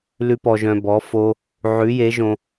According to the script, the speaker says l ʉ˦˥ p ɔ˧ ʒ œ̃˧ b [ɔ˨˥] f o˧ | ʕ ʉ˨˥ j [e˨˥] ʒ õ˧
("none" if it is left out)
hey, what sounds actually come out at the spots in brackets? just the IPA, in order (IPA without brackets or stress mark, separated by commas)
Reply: ɔ˨˥, e˨˥